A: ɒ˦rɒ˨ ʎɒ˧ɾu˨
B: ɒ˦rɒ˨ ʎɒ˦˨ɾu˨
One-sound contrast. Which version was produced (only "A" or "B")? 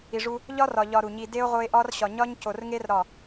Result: A